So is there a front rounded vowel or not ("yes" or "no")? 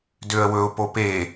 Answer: yes